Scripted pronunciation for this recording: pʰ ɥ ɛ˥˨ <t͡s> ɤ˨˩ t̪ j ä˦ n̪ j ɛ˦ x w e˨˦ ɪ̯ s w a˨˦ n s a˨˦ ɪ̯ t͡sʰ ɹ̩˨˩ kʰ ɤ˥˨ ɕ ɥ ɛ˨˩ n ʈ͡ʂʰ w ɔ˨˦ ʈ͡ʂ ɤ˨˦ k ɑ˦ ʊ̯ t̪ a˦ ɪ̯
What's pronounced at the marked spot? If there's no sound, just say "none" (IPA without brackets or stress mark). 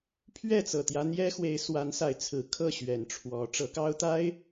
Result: t͡s